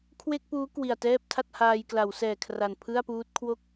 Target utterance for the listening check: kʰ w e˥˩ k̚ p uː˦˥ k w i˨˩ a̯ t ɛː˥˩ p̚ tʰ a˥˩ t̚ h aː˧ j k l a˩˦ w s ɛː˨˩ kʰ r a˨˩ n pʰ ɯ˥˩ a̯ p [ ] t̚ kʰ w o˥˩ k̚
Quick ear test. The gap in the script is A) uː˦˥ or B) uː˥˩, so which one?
A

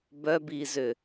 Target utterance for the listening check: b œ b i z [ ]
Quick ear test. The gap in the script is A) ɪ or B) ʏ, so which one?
B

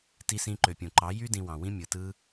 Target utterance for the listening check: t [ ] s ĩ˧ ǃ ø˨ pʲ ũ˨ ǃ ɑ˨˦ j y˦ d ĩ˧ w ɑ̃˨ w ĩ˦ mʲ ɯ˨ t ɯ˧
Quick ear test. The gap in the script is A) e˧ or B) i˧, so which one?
B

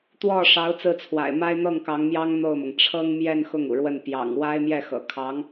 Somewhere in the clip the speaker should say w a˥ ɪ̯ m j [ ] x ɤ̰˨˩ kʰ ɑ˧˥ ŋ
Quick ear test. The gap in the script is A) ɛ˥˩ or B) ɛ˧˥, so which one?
A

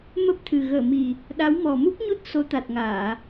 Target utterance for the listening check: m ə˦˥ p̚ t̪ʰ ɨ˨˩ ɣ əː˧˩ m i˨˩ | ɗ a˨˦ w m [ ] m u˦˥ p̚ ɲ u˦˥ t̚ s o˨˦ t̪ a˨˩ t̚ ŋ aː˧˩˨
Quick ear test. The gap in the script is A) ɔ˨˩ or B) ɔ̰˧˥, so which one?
A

